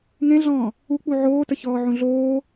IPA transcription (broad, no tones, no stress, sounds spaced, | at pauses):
ŋ ẽ ɮ ɔ̃ː | u k͡p u ʕ oː t ə ç ɔː ʕ ũ ɮ oː